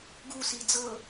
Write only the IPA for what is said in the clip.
ɡusi d͡zɤ

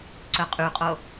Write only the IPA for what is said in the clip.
ǀœqʼyqʼo

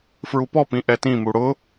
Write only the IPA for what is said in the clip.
fɹupɔpĩ ʔɛtĩmu ɽʊ

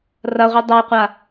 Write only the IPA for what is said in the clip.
rɐʁʷi dˤɐjqʷa

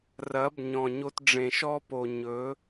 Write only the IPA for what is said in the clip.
rɐ˨˦b ɲɔ̃˨ɲo˧t ɖ͡ʐẽ˨ʃɔ˦po˨ ɲɵ˨˦

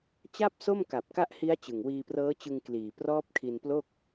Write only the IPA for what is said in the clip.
t͡ɕa˥˩p̚so˥˩m ka˨˩p̚ka˦˥ʔhi˦˥a̯ t͡ɕɯ˨˩ŋwiː˧prɤː˦˥t͡ɕɯ˧ŋ kliː˨˩prɔː˦˥p̚kʰi˧nplo˥˩k̚

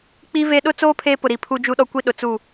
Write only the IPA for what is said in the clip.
k͡piː˦ ve˦ ɗʊ˦t͡soː˦ pʰeː˦pʊ˨ɾi˨ pʰu˦d͡ʒu˦ ɗɔ˦kʷi˦ ɗʊ˨t͡su˦˨

